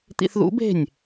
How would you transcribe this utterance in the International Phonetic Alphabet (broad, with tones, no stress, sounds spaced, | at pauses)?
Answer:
t̪ ḭ˧ θ ð ṵ˨˦ b e̤˦˨ nʲ